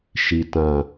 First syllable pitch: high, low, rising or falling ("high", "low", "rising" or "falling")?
low